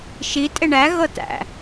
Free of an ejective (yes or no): no